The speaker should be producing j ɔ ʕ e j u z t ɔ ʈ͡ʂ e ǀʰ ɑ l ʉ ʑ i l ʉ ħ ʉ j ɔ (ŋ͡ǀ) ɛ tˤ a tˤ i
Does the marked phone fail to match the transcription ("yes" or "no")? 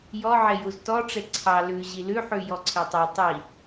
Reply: yes